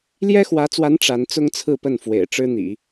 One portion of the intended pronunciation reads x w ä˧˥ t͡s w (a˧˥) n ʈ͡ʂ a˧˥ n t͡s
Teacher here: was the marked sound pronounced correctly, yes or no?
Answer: yes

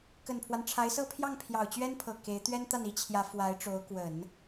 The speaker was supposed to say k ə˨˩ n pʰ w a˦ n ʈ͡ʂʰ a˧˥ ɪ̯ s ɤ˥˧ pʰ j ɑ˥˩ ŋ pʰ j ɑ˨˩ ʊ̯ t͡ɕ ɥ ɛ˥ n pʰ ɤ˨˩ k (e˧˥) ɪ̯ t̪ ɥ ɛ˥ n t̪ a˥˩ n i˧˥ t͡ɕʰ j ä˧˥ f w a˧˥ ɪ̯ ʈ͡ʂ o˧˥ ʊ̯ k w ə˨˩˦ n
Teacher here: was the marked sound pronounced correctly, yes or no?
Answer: yes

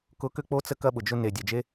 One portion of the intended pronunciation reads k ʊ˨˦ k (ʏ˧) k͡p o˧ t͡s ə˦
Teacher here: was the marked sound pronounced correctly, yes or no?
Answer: yes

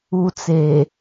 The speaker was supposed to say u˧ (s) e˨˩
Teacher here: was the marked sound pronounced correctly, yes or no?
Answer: no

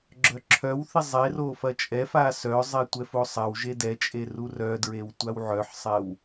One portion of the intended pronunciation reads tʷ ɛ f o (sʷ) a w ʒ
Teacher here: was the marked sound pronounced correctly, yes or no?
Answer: no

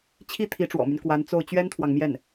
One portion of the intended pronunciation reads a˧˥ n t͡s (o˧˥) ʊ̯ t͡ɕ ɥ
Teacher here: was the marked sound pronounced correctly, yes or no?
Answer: no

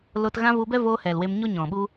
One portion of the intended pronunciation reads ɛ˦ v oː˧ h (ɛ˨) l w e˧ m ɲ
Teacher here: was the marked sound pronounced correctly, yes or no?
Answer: yes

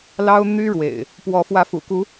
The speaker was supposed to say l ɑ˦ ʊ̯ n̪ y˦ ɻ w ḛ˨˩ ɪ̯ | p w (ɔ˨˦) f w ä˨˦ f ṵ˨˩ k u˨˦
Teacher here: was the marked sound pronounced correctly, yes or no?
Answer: yes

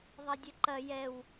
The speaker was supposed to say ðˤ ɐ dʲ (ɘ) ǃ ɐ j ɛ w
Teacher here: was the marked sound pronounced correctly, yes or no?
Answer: yes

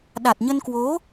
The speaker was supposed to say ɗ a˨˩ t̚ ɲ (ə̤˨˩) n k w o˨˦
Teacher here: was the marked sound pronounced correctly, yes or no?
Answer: no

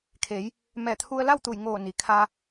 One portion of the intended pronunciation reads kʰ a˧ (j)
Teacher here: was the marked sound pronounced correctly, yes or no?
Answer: no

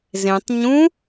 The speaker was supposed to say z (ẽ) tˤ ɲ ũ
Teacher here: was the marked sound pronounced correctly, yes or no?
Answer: yes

